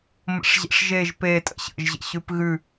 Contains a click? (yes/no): no